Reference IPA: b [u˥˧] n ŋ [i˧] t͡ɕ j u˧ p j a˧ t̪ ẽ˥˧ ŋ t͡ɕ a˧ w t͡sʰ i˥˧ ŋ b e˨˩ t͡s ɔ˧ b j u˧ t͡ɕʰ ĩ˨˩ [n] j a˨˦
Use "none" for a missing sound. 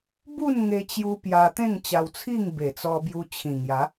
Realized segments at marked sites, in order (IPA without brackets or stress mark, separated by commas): u˥˧, e˧, ŋ